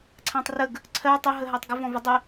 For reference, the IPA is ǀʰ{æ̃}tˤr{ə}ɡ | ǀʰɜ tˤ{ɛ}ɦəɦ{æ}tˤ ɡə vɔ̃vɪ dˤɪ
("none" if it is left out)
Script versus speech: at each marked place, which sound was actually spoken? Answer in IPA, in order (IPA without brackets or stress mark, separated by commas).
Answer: æ̃, ə, ɛ, æ